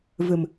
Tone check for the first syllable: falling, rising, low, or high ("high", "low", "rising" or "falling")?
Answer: low